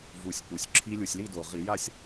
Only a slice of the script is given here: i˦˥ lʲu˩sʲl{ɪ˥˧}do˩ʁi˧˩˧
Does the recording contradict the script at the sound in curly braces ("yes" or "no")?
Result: yes